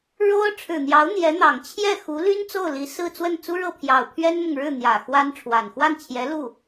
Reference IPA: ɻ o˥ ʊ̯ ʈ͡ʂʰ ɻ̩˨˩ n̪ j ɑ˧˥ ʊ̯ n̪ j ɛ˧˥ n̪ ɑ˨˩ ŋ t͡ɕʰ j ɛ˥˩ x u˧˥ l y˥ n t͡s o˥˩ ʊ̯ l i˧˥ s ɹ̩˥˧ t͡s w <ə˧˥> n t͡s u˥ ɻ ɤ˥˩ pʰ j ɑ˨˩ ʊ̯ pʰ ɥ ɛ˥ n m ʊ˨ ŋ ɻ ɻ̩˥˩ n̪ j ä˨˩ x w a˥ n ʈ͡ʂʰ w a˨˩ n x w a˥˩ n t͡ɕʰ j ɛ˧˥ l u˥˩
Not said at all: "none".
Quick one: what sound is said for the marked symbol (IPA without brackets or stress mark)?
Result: ə˥˩